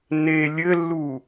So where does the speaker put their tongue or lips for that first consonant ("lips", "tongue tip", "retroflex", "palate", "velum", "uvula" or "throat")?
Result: tongue tip